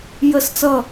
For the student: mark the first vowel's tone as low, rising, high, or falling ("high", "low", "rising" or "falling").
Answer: falling